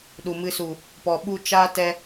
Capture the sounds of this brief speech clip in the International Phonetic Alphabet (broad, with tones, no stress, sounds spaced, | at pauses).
ɗ u˨ m ɨ˧ s u˨ | p ɔ˨ ɓ u˧ t͡ʃ a˦ t ɛ˧